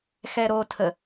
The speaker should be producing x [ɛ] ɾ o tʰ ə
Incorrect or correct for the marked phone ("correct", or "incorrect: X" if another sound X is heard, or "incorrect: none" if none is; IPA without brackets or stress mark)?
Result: correct